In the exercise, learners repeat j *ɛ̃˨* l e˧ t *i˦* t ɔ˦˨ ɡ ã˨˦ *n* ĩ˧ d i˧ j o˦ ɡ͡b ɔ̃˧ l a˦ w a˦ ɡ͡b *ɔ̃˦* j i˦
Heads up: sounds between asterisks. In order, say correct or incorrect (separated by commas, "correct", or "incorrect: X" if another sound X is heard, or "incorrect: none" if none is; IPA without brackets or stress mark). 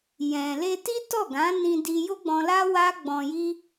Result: correct, correct, correct, incorrect: ɔ̃˧